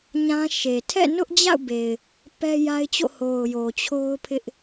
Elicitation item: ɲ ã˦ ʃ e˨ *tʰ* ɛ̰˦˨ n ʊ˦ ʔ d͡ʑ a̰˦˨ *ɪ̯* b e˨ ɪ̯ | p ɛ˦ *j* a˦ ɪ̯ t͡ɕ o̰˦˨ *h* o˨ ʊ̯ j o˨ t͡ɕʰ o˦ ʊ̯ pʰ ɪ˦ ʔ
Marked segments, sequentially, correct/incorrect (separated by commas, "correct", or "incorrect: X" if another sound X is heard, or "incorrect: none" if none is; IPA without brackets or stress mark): correct, incorrect: ʊ̯, correct, correct